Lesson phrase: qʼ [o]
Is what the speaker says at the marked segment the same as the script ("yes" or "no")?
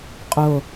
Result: yes